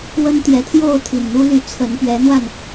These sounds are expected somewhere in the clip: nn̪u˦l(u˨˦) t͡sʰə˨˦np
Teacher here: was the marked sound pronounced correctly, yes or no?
no